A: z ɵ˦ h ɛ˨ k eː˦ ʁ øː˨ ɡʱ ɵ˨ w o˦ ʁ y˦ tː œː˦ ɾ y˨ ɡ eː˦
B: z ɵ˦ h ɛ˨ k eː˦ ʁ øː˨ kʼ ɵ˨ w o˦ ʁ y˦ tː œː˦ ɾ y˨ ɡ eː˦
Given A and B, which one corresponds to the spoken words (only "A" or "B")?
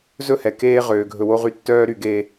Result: A